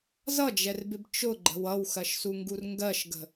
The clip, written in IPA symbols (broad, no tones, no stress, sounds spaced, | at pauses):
z ʌ d͡ʒ ɛ r b ɪ b t͡ʃ ʊ ɡ͡ǃ ə̤ w ʌ w x ɜ ʃ s u ŋ ɡ u r ŋ ɡ ɜ ʃ ɡ ə̤